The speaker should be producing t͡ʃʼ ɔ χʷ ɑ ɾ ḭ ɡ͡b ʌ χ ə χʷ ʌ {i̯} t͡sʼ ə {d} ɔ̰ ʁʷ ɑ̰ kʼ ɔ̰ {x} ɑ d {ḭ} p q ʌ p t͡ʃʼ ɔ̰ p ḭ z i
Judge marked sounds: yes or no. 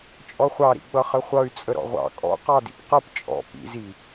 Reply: no, no, no, yes

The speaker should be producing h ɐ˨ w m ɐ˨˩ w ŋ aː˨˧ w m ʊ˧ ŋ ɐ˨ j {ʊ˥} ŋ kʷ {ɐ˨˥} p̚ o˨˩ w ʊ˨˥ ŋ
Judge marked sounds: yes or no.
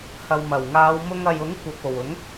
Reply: no, no

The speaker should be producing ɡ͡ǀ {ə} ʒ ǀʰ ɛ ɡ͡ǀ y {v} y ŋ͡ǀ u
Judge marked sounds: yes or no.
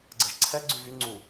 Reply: yes, yes

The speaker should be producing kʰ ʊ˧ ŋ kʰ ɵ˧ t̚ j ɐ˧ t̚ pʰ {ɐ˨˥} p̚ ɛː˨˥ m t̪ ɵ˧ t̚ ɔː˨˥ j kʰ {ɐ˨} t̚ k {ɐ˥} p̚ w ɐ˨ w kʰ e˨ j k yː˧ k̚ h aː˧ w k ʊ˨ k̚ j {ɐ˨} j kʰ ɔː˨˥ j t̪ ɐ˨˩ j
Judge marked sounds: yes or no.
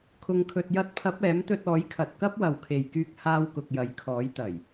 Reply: yes, yes, yes, yes

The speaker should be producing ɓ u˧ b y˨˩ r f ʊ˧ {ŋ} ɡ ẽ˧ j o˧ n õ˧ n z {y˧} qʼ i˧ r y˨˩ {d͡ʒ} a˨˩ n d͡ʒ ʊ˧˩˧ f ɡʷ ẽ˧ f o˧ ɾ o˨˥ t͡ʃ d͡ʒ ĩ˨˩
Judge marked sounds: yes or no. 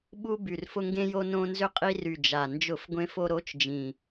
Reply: yes, no, yes

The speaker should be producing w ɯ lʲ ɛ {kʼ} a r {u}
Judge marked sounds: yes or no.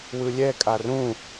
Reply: yes, no

